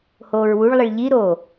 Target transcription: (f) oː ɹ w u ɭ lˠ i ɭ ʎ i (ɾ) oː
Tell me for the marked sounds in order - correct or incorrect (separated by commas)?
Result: incorrect, correct